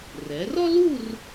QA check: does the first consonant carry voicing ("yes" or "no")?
yes